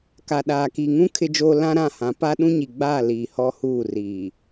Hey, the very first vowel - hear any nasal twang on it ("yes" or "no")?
no